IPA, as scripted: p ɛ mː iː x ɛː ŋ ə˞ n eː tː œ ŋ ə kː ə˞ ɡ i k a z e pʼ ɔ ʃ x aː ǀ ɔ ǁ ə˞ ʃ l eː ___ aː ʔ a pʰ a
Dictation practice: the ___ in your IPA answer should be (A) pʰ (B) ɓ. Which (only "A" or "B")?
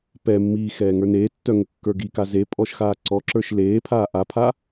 A